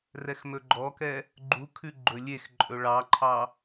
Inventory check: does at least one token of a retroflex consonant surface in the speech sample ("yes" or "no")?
yes